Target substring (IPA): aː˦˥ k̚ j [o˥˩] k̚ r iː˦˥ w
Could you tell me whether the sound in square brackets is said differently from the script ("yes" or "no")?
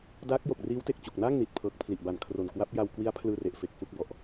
yes